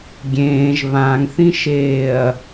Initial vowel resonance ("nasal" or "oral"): nasal